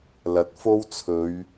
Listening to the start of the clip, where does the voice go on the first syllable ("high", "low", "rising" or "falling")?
rising